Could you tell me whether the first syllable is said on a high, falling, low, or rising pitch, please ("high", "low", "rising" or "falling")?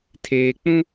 low